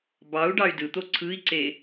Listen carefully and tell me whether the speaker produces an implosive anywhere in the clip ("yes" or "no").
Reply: no